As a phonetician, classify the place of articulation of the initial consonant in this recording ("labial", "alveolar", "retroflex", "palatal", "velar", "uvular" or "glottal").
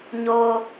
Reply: palatal